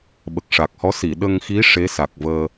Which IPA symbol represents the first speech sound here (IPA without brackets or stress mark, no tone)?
ɓ